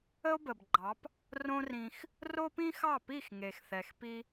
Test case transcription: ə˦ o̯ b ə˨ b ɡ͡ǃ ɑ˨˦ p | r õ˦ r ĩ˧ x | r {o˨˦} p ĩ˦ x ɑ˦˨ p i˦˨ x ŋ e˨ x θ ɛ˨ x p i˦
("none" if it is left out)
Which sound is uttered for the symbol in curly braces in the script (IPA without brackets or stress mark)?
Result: o˦